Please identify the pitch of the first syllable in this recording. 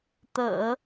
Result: low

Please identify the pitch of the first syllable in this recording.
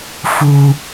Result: low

